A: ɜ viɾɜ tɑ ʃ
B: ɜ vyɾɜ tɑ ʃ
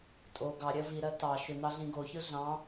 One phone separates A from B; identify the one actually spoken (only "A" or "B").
A